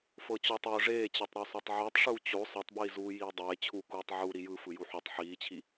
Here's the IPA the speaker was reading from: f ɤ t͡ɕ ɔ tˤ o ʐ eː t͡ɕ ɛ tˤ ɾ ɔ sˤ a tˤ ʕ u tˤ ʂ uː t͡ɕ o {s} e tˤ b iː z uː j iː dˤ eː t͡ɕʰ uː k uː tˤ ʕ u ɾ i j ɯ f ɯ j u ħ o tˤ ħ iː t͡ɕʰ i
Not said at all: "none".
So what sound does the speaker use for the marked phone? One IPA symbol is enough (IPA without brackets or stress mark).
sˤ